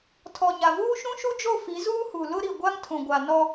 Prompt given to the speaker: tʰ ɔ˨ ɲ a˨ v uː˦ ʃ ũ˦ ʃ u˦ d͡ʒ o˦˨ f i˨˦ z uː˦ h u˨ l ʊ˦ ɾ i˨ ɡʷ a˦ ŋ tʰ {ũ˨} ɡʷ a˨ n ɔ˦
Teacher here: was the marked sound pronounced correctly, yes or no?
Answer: yes